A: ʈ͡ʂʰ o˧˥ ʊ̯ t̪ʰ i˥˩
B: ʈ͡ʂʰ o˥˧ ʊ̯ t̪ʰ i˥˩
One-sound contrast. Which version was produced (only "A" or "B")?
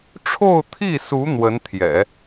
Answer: B